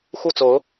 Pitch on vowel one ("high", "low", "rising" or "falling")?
falling